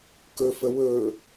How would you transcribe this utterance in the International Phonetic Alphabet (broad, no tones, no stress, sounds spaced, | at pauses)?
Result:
k ɵ f ə w ɵ